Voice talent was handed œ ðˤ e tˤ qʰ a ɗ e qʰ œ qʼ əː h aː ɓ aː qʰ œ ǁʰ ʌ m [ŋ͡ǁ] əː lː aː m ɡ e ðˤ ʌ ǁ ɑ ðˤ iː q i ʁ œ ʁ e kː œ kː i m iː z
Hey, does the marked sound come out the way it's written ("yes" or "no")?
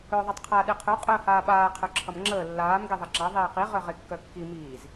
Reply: yes